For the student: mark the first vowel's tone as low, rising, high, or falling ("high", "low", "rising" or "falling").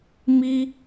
high